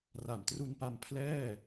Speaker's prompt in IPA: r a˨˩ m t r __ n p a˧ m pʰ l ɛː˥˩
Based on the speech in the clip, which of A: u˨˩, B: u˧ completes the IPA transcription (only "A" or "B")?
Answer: B